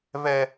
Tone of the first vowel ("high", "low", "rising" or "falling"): high